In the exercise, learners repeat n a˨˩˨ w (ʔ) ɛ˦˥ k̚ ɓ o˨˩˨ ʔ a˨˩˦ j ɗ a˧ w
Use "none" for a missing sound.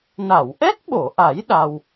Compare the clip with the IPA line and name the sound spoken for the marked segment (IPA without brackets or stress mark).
ʔ